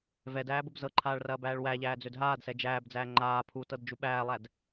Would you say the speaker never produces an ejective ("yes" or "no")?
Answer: yes